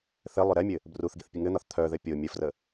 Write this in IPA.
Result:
θ ɘ lˠ ʏ ɾ ɛ mʲ ɘ | b r u θ ɡ i θ pʲ ə ŋ ɘ n̪ ɒ θ t̪ʰ œ ð ɘ pʲ o mʲ ə f r ə

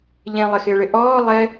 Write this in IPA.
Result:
ʎ ẽ lˠ ɪ x ɪː ɭ ɪ ʔ ɔː lˠ ɛ

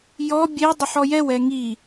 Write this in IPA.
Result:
j ɔ bʲ e dˤ ə ħ ɔ j ɛ w ɛ ŋ i

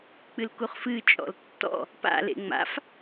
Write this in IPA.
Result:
k͡p ɨ l k u χ f ɨ t͡ʃʼ ɔ̰ l tː ɔ̰ | p a̰ l ḛ ŋ͡m a̰ f

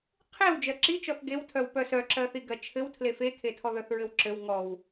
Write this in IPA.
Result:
qʰ e w d͡ʒ ɜ ǁ i t͡ʃ ɔ θ ɡ e w tʰ œ w p œ s œ ǁ ɜ θ i ɡ ɜ t͡ʃʰ ɘ w tʰ l e f e kʰ e tʰ ɔ ð œ θ ɹ ɘ w ǁ ɘ w ŋ ɔ w

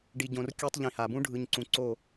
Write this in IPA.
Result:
ɖ i˨ ɟ õ˨ r kʲ u˦ tˤ ʎ ĩ˨ h a˨ b ũ˦ ɖʱ ɯ˨ ɲ ǀ ũ˨ ǀ o˦˨

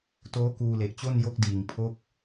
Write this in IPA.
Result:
t oː˦˥ k uː˧ l e˨˩ ʔ t͡ɕ o˥˩ n j o˦˥ k̚ d iː˨˩ ŋ pʰ o˥˩ k̚

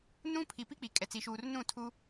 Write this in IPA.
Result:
n ũ˦ pʰ i˨ p i˦ k͡p i˨ kʼ ɛ˨ t͡s i˨ ʃ uː˨ r n ũ˦˨ tʰ u˦

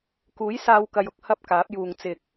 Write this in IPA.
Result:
k uː˨˥ j s aː˧ w k ɐ˧ j ʊ˥ k̚ h ɐ˥ p̚ k aː˨˥ p̚ j uː˨ ŋ t͡s ɪ˨ k̚

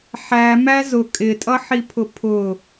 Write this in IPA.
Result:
ħ æ m æ z ʊ kʼ ɪ tʼ ʌ ħ i pʰ ʊ pʰ ʊ

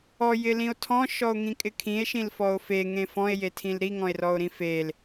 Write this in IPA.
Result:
ɔ j ɪ l ĩ o̯ tʰ ɔ̃ ʃ ɔ o̯ ŋ ĩ kʼ ɪ kʰ ĩ e̯ ʃ ĩ l f ɔ o̯ f e ŋ ẽ f ɔ̃ e̯ j e tʰ ĩ l ɾ i ŋ ɔ̃ e̯ r ɔ o̯ ɾ ĩ f e l

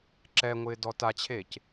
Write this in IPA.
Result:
ǁ ɛ ŋʷ ɪː d ɔ t a t͡ɕʰ eː c

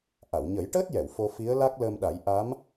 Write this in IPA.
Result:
ʔ a˨˩˨ w ɲ ə˨˩˦ j ʈ əː˦˥ t̚ j ɛ˨˩˨ w f o˧ f i˧˥ ə̯ l a˦˥ k̚ l əː˧ m ɗ a˨˩˦ j ʔ a˧˥ m

